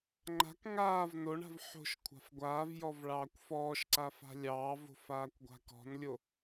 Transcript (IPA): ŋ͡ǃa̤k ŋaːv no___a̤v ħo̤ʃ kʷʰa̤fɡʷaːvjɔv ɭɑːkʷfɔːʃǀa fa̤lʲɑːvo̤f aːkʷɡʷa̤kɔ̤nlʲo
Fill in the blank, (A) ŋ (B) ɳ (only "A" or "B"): B